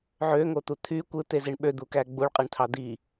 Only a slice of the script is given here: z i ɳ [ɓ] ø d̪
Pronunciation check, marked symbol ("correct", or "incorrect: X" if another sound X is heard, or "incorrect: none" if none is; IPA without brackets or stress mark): correct